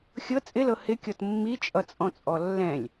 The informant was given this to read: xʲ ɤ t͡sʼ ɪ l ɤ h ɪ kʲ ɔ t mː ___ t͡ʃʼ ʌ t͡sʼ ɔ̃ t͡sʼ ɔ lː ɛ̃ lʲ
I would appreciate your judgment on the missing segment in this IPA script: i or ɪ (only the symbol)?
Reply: i